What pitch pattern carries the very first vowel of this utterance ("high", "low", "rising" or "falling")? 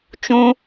high